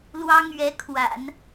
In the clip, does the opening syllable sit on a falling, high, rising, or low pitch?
high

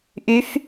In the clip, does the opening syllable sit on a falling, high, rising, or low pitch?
rising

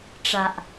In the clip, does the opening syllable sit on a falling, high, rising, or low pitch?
low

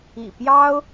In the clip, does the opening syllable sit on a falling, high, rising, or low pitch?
low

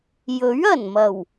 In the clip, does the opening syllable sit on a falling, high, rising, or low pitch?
rising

